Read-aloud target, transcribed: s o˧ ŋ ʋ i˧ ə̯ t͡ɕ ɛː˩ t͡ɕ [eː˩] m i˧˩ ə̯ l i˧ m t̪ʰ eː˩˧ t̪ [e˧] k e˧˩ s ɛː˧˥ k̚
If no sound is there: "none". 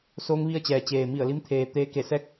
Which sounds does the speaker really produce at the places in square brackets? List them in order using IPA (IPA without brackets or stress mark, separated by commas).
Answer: eː˩, eː˧